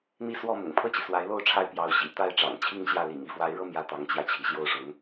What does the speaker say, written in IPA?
n̪ i˥˧ s w ɔ˥˩ m ʊ̰˨˩ ŋ pʰ ɤ˥˩ t͡ɕ i˩ s w a˧˥ ɪ̯ l o˥˧ ʊ̯ ʈ͡ʂʰ a˥˩ ɪ̯ p j ɑ˧˥ ʊ̯ ɕ ḭ˨˩ t̪ a˥˩ ɪ̯ ʈ͡ʂ ɑ̰˨˩ ŋ t͡ɕʰ i˥˧ ŋ ɕ j ä˥˩ l ḭ˨˩ ŋ i˥˩ f w a˧˥ ɪ̯ ɻ ɤ˥˧ m j ä˥˩ t̪ ɑ˧˥ ŋ t͡ɕ j ä˧ t͡ɕʰ i˩ ɕ j o˥˩ ʊ̯ ʂ ʊ˧˥ ŋ

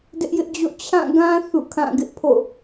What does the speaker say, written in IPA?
d ɪ˦ ʔ j ɪ˦ ʔ d͡ʑ o̰˦˨ t͡ɕʰ ã˦˨ ɡ ã˦ θ ṵ˦˨ kʰ ã˦˨ ɡ ɪ˦ ʔ pʰ o̰˦˨

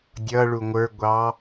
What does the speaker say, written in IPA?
dʲ ʌ ɭ u ŋʷ ə˞ ɡʷ ɑ

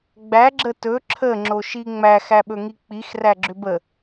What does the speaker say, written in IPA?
ɡ͡b æ ɡ͡ǁ ə t ɵ ǁʰ ə ŋ͡ǁ o ʃ i ŋ͡m æ x æ ɓ ɵ ŋ i k͡p i x r æ ɡ͡ǁ ʏ b ə

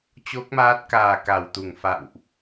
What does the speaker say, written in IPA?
t͡ɕ o˦˥ k̚ m aː˦˥ t̚ k aː˨˩ k a˧˩ w t̪ u˧˩ ŋ f a̰˧˨ w ʔ

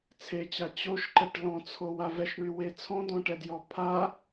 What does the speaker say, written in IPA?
t͡sʰ e t͡ɕ a t͡ɕ o ʃ ǃ ɛ ʈ l ɔ̃ t͡sʰ o w a v ɛ ʃ ɳ y w e t͡sʰ ɔ̃ d ɔ̃ ʈ ɛ d j ɔ pʰ a

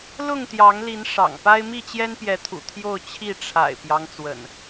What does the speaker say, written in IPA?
l ʊ˥˨ ŋ t̪ j ɑ˨˦ ŋ l i˨˦ n ʂ ɑ̰˨˩ ŋ p a˦ ɪ̯ m i˥˨ t͡ɕ j ɛ˦ n p j ɛ˨˦ t̪ʰ ṵ˨˩ t̪ʰ j o˥˨ ʊ̯ t͡ɕʰ i˥˨ ʈ͡ʂʰ a̰˨˩ ɪ̯ p j ɑ˦ ŋ t͡s w ə̰˨˩ n

